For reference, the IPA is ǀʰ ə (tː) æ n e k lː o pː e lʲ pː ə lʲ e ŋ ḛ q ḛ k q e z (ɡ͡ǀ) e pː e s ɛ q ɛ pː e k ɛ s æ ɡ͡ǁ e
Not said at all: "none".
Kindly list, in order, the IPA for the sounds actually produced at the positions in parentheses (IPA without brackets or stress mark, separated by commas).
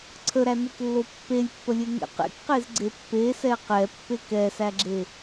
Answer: ɾ, ɡ͡ǀ